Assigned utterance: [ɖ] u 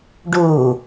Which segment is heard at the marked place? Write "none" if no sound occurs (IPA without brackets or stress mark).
ɖ